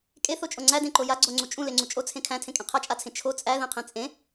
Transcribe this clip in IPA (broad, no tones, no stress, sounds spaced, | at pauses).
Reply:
kʼ e θ o t͡ʃʼ o ŋ͡ǀ æ d ẽ ǃ o j a ɡ͡ǀ o ŋ͡ǀ u t͡ʃʼ ũ l e ŋ͡ǀ u t͡ʃʼ o t͡sʰ ẽ kʰ æ̃ tʰ ẽ kʼ ẽ qʰ a t͡ʃʼ a t͡sʰ ẽ t͡ʃʰ o t͡sʼ æ ð ẽ qʰ ẽ t͡sʼ ẽ